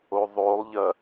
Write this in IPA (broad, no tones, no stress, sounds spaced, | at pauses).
o ðˤ o lˠ ʎ ɐ